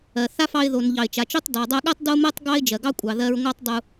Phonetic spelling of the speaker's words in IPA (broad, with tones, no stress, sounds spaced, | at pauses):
ɜ˩ θ a˥ f ɑ˧ ɪ̯ ð o˩ n ʎ ɑ˩ ɪ̯ t͡ʃ a˩ t͡ʃ o˥ tˤ d ɑ˩ dˤ ɜ˧ ɠ ɜ˥ tˤ d o˥ m ɜ˥ tˤ ɡ ɑ˥ ɪ̯ d͡ʒ ɜ˩ ɡ ɑ˥ kʷʼ ɑ˩ ð ɜ˧ ɹ ŋʷ ɑ˥ tˤ dˤ u˧